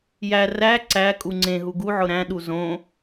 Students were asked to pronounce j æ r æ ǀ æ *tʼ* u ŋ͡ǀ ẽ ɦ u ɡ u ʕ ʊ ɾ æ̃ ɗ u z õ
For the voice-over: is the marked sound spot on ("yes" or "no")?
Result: no